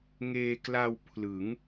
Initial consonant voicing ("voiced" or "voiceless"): voiced